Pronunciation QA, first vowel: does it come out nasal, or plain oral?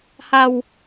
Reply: oral